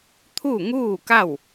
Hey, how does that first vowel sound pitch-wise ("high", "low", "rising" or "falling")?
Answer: falling